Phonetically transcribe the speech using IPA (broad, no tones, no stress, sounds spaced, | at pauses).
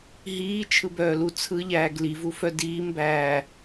ɦ iː t͡ʃʰ ɯ b œː l u t͡sʰ ɯ ʎ æː ɡ l i v u f œ d iː m b æː